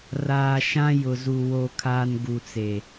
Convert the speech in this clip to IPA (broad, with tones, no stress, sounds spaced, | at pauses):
r aː˨ ʃ ã˦ j ʊ˨ z u˨ w o˨ kʰ aː˨ n ɡ u˨ t͡s e˨